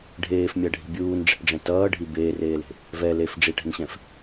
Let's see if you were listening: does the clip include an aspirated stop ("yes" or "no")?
no